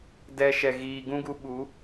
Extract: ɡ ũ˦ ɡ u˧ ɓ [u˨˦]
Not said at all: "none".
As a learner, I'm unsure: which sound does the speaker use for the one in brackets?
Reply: u˨˦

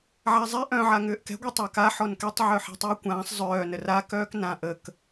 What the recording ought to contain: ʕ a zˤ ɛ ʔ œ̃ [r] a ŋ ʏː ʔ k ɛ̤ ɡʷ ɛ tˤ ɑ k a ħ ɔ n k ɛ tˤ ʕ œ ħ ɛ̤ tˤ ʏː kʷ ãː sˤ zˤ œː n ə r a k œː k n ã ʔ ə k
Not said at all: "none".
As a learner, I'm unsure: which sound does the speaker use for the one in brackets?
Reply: ʕ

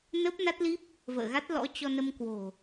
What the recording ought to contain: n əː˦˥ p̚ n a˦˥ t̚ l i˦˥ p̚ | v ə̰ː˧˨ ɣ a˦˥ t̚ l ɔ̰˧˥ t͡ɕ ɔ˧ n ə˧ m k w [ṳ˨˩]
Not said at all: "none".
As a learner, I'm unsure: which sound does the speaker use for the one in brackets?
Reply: o̤˨˩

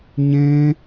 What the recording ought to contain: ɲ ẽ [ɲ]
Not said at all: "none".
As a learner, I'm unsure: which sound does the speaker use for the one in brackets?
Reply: none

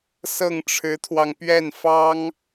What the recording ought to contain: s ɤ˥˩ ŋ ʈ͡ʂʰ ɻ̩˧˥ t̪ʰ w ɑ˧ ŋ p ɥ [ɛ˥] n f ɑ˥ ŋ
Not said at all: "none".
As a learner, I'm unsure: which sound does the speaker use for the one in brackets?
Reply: ɛ˥˩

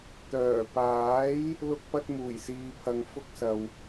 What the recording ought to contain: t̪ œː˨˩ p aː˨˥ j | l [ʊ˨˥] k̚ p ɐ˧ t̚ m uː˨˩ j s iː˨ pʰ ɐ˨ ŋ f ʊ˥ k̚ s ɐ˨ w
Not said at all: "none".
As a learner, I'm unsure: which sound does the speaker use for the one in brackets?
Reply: ʊ˧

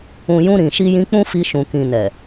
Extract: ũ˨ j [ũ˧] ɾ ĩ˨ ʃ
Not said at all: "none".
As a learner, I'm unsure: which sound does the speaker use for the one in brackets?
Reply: ũ˧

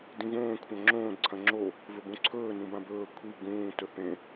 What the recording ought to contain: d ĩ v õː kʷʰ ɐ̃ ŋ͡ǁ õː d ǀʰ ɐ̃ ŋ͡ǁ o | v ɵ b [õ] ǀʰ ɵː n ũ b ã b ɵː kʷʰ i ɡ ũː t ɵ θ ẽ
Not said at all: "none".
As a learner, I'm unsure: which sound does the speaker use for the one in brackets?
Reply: õ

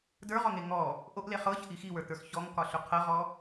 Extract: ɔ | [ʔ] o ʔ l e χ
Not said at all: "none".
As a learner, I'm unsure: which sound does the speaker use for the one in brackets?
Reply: ʔ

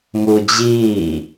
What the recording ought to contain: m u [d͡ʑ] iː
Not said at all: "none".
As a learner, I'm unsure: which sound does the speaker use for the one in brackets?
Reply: d͡ʑ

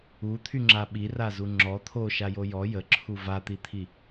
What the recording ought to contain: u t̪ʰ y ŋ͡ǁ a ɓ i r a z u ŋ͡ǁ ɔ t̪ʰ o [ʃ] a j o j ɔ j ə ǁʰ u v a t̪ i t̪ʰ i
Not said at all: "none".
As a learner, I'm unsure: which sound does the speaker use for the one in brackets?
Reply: ʃ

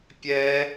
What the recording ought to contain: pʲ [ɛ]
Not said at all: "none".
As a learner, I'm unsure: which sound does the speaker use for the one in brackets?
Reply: ɛ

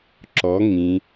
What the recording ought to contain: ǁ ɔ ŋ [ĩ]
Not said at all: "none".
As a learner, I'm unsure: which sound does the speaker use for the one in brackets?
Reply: ĩ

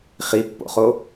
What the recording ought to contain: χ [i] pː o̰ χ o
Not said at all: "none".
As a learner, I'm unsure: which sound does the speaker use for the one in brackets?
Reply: i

